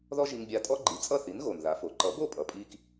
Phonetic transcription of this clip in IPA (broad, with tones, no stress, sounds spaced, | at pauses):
ð ɔ˥ ʒ i˧ ŋ bʲ a˧ tʼ ɔ˥ ɡ͡ǃ i˩˥ t͡sʼ ʌ˥˩ θ i˩˥ n ɣ o˩ n ð a˩˥ f o˩ ǃ ʌ˩˥ b o˥˩ pʼ ʌ˩ pʼ i˧ k